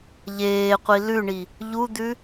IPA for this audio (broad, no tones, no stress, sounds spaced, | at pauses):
ʎ eː qʷ i l ʉ ɳ i | ʎ u d̪ ʉ